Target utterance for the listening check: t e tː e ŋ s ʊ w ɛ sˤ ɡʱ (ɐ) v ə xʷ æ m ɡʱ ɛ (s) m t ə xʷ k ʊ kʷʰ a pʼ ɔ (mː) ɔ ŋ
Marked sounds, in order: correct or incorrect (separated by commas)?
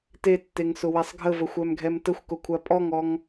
incorrect, incorrect, incorrect